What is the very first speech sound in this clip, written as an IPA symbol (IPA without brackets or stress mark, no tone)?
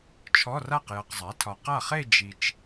t͡ʃʰ